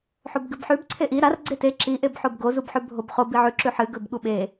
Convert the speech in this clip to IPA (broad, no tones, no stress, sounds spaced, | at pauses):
ħ o b ɡ ɨ b ħ ʉ b ǀʰ e ʔ i ɾ a r ɡ͡ǀ e t e ǁ i ʔ e b ħ o b ɡ o z u b ħ ʉ bʱ o b χ o b i ʕ ʉ ǁ ʉ ħ ɨ ɡ ɵ b ɠ u ɓ e